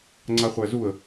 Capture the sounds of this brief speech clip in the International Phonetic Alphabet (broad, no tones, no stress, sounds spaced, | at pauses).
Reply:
ŋ͡ǀ a χʷ æ z u ə̯